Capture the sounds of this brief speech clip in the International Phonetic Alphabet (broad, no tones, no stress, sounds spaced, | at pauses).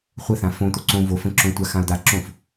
χʷ ə θ ã f õ t̪ o ǀ õ v o f ə̃ ǁ õ tʷ a x ã ʊ̯ d̪ a ǁ õ f